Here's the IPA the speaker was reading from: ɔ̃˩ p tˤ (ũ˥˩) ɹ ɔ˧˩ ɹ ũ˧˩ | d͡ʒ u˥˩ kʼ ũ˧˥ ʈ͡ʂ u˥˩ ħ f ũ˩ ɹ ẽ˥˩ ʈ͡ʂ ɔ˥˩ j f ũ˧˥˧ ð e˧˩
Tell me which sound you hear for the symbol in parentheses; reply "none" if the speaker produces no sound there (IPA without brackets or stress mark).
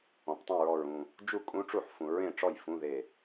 ũ˥˩